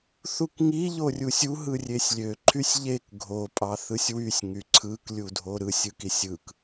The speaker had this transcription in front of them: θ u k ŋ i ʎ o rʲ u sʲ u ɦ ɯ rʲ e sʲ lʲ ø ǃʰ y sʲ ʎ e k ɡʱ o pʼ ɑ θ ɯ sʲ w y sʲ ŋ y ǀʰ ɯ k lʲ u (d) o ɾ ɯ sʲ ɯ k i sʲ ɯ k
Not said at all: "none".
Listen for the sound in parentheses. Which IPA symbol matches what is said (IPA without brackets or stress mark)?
dʱ